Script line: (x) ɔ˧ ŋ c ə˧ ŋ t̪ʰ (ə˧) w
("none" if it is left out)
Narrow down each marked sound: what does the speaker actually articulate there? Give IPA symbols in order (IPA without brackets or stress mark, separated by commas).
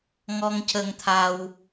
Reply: ŋ, a˧